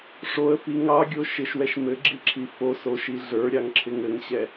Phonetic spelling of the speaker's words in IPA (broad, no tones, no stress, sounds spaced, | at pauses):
ʂ o ə̯ f i ŋ ɑ ɡʲ o ʃ ɪ ʃ w ɛ ʃ m ɘ ɡ͡ǁ i ǁʰ i f o s o ʃ i ɮ ə˞ ɾʲ ɑ ŋ ǁʰ ɪ ŋ ɘ ŋ ɕ ɛ